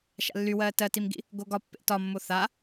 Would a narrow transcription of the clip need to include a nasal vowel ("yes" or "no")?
no